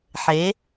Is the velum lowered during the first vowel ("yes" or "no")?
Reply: no